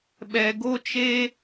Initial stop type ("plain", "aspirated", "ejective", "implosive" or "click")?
implosive